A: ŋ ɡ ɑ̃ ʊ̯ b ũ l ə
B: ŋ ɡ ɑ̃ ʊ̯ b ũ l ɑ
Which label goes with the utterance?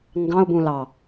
B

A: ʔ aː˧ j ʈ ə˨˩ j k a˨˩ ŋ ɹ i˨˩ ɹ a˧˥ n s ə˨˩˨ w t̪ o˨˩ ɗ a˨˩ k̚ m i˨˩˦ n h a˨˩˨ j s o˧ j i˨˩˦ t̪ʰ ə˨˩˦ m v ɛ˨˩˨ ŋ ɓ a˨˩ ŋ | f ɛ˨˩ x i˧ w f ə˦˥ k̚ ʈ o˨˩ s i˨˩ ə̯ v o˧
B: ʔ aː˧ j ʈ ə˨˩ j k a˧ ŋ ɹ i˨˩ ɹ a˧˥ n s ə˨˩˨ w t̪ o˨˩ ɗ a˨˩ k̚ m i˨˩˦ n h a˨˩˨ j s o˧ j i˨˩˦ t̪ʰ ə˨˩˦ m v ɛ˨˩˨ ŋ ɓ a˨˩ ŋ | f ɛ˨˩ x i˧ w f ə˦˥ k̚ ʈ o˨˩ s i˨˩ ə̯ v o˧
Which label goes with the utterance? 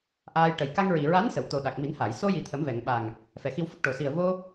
B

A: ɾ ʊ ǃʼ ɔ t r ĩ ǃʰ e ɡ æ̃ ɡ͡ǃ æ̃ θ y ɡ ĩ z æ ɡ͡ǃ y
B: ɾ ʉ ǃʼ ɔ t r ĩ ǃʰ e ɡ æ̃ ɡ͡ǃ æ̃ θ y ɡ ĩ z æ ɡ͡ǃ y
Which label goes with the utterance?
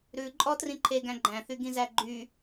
B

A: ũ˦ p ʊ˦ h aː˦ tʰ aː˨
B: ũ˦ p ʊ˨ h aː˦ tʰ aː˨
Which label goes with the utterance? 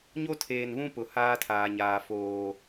B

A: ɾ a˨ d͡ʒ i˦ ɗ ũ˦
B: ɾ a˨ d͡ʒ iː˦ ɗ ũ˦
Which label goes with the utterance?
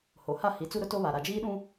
B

